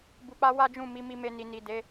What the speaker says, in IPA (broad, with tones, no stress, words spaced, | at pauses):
bu˨k͡pa˧ wa˦d͡ʒũ˦˨ mi˨˦mi˧me˧ni˨ ni˨de˨˦